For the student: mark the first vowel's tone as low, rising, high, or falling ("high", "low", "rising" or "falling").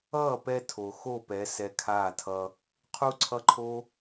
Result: falling